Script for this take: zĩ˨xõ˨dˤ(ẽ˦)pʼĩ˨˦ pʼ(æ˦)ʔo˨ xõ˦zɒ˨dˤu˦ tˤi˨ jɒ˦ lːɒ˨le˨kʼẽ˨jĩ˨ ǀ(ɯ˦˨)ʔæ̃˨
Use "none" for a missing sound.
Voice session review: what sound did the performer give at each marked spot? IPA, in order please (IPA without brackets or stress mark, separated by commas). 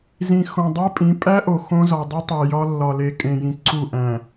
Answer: e˦, æ˦, u˦˨